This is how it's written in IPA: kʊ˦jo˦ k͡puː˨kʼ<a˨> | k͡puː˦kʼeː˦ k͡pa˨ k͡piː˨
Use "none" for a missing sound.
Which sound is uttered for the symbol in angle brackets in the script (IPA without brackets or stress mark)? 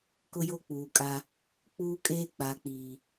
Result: a˦